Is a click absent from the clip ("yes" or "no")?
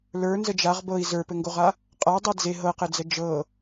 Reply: yes